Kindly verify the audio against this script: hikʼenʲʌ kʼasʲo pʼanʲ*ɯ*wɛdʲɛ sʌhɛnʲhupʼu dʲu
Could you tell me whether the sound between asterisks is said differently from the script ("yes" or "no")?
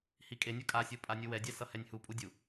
no